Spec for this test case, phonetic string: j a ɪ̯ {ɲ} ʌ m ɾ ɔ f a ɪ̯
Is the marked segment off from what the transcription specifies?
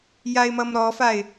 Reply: yes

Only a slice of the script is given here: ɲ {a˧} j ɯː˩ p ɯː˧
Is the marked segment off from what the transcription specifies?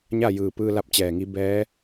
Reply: yes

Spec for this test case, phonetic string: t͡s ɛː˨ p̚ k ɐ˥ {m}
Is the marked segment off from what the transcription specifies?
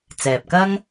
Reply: yes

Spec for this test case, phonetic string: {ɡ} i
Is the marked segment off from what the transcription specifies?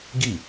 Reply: no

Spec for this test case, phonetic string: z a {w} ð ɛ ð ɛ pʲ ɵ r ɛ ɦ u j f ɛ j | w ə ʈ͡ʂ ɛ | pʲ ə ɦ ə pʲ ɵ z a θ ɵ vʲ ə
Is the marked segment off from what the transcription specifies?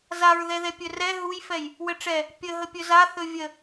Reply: yes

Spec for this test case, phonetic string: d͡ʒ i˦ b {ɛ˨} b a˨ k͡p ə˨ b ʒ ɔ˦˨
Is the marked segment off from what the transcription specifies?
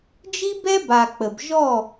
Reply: yes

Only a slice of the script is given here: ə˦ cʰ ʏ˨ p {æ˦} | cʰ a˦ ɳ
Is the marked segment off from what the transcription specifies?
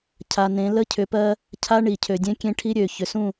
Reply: yes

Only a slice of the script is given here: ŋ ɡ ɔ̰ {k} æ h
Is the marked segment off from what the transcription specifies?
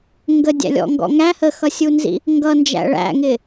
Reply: yes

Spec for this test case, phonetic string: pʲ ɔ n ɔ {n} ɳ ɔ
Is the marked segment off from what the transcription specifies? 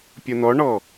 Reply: yes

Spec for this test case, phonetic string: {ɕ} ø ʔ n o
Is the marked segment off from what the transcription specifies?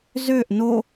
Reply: yes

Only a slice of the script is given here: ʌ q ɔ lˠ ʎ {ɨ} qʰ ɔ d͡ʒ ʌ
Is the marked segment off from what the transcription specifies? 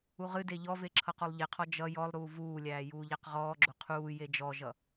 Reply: yes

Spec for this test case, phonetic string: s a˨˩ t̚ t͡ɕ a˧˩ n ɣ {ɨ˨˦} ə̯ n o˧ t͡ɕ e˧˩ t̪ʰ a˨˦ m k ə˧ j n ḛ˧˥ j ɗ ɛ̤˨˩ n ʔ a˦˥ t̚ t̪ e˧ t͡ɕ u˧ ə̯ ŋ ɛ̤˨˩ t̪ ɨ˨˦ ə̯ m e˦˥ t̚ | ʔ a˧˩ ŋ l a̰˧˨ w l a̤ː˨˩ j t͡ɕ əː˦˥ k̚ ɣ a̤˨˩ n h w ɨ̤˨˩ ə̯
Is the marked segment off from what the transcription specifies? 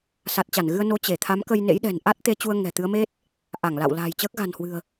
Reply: yes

